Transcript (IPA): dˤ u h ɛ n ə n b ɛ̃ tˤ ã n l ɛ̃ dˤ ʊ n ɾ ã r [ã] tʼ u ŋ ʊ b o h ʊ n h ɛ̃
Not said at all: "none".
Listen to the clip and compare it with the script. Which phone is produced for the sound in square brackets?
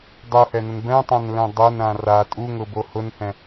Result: a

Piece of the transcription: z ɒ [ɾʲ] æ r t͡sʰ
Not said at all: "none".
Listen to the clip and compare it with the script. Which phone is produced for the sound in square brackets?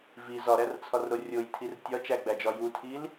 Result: ɾ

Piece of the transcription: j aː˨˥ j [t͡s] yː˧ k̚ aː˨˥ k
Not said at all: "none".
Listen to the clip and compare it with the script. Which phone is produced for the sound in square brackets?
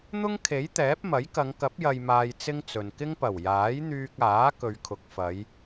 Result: n̪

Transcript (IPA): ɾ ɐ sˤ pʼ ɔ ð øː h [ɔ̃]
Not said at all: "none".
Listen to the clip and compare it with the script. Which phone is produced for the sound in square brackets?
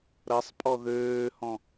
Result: ɔ̃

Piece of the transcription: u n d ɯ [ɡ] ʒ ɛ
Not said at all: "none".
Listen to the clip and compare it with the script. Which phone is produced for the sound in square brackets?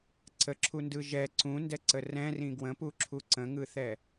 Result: none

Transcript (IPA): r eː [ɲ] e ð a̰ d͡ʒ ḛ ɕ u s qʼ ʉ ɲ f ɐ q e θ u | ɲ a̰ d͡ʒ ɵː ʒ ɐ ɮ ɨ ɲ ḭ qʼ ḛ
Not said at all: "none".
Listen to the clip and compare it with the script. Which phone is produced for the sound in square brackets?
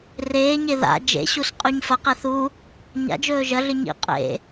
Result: ɲ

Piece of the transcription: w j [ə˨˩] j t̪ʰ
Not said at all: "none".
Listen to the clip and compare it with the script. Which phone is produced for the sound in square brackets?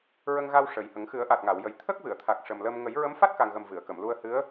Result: ə˨˩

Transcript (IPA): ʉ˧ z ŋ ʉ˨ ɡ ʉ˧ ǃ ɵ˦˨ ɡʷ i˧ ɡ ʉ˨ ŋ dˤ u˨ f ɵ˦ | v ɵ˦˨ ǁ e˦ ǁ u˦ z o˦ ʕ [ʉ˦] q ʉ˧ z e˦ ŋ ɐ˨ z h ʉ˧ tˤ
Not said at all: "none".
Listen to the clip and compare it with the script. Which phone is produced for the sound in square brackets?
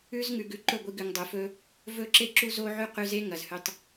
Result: ʉ˦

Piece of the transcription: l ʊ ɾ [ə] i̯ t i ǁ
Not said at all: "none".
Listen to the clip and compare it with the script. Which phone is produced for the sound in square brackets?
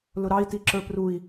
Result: ɑ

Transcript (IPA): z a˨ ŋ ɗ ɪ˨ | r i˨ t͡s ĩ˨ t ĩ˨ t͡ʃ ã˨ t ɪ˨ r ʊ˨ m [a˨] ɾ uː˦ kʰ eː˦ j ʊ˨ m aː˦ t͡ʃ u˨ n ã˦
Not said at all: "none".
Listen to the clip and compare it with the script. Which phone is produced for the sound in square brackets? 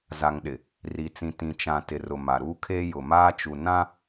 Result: a˨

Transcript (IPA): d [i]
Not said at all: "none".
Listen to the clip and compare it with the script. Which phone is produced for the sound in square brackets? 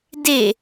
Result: e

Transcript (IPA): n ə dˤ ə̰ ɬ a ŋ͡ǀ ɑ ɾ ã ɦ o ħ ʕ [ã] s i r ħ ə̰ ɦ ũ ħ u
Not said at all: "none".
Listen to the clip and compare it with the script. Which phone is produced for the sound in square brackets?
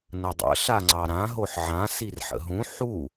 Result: ã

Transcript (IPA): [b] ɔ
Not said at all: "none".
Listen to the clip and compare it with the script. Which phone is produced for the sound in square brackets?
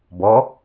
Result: b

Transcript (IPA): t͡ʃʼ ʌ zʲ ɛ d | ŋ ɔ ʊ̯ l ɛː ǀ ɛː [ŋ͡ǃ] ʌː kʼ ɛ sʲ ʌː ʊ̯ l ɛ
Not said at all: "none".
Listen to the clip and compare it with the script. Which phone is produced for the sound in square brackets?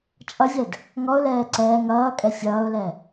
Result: ŋ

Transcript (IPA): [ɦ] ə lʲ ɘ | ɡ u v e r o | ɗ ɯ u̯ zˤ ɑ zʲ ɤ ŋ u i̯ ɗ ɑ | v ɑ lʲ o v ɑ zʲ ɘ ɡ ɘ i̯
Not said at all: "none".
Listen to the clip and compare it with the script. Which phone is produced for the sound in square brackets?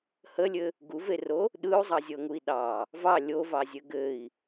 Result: h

